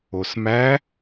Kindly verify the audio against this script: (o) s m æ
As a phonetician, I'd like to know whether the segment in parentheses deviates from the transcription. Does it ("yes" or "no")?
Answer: no